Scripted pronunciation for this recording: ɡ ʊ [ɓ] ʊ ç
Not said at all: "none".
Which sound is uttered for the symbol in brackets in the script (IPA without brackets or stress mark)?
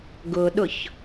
ɗ